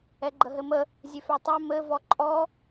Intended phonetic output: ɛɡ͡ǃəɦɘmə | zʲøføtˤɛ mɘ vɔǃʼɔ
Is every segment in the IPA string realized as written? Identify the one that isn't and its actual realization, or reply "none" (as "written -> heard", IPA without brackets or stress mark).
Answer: none